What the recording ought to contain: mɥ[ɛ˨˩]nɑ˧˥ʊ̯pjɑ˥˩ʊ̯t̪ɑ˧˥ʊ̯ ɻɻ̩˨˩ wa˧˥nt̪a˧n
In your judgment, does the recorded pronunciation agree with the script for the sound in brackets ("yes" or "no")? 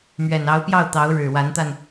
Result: yes